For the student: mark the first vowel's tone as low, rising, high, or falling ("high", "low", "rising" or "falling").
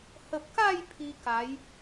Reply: low